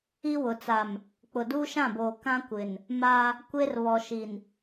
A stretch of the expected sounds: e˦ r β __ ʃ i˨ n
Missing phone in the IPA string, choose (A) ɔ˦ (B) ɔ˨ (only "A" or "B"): B